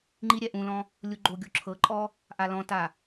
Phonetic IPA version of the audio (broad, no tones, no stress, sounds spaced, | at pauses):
ŋ͡ǃ i ɾʲ ɛ ʔ ũ l ɔ̃ | lʲ u ɡ͡ǃ o ɡʲ o ǁʰ ɤ ǃʼ ɔ | ʔ a l ɔ̃ t a